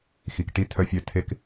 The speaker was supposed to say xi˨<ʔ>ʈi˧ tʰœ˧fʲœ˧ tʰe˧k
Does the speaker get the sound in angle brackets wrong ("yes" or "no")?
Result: yes